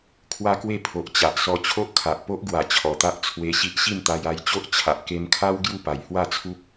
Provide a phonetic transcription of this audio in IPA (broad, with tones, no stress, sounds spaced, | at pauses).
kʰ w a˦ k w e˥˧ pʰ o˨ ʔ t͡ɕ a˨ ʔ s ɔ˧ t͡ɕʰ o˦ ʔ kʰ a˨ ʔ p o˦ ʔ ɡ w a˨˩ t͡ɕʰ ɔ˨˩ t̪ a˦ ʔ t͡sʰ w e˧ ɕ i˦ ʔ ɕ i˥˧ m t̪ a˧ j a˧ j t͡ɕ o˦ ʔ t͡ɕʰ a˨ ʔ k e˧ m kʰ a˦ w ɡ j u˥˧ p a˨˩ j h w a˥˧ t͡sʰ u˦ p̚